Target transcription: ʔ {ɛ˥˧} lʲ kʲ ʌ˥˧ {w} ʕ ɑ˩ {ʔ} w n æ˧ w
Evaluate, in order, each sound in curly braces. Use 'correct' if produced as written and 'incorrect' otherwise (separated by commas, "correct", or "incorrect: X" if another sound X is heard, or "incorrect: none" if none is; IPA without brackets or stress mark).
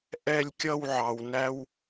correct, correct, incorrect: none